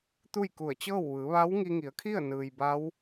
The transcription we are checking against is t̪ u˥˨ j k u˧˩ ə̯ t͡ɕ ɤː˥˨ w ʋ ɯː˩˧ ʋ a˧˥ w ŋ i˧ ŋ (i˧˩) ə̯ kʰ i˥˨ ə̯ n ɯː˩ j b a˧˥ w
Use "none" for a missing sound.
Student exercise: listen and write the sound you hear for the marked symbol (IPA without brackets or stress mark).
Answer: i˩˧